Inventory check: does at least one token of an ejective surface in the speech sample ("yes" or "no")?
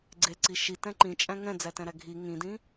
yes